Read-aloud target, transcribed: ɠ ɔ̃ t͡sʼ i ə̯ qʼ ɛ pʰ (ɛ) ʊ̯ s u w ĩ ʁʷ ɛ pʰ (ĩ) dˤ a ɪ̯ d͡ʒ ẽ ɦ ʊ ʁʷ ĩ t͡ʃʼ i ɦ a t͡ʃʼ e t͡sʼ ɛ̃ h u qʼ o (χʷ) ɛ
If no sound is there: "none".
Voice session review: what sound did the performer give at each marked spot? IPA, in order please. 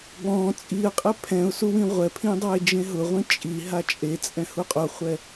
ɛ̃, ĩ, χʷ

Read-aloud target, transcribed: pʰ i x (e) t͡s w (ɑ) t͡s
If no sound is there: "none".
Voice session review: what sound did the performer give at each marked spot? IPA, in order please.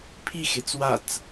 e, a

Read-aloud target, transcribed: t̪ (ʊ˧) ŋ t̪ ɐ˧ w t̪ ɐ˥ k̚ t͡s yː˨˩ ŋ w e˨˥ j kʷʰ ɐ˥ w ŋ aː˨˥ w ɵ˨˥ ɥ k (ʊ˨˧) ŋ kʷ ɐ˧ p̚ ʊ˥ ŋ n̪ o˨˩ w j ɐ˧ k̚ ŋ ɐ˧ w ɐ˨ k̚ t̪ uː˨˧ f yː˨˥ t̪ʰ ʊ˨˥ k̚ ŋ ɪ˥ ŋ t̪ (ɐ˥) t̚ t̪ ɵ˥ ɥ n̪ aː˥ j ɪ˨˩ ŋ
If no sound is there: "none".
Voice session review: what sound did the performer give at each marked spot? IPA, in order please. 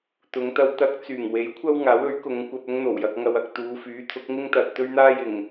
ʊ˨˧, ʊ˨˧, ɐ˨

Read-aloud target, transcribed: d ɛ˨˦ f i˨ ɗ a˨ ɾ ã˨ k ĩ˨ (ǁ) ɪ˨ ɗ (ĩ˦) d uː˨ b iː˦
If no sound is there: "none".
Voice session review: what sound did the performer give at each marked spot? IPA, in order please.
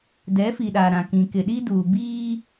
k, i˦

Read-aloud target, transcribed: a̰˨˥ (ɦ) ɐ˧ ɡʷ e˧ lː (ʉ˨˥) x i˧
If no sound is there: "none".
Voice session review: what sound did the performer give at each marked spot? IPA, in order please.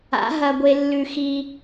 ɦ, ʉ˧

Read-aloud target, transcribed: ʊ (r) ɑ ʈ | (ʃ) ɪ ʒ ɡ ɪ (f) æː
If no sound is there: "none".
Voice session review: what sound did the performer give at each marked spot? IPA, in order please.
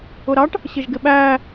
ɾ, ɕ, ɓ

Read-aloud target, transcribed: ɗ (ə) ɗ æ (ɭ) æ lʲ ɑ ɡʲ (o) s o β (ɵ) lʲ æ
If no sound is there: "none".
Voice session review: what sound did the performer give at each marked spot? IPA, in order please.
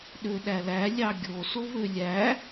ø, l, o, ø

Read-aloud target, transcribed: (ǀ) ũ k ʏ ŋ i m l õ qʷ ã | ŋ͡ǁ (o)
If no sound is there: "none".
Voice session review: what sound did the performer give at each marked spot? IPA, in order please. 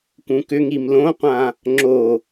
k, o

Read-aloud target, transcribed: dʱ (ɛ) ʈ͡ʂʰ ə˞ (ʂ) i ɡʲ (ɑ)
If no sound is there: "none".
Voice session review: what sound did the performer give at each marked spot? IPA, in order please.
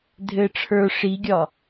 ɘ, ʂ, ɒ

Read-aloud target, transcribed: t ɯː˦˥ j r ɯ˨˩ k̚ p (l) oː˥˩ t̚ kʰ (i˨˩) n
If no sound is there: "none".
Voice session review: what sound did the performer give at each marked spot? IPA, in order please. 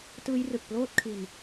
l, i˧

